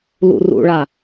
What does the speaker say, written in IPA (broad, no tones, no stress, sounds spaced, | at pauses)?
l ṵ r ṵ ɭ a